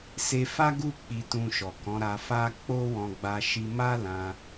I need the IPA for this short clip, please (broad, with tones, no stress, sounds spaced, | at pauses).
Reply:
s e˧ f a˦ ɡ u˦˨ k͡p i˧ t ũ˧ ʃ ɔ˨ k ɔ̃˨˦ ɾ a˧ f a˦ k͡p o˦ w ɔ̃˧ ɡ͡b a˧ ʃ i˧ m a˦ l ã˧